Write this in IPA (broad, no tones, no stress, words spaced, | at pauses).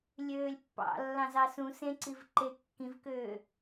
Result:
lʲøːlʲpːɑ̰ lːɑ̃zɑsũ sẽǀiv ǃe kːĩvkøː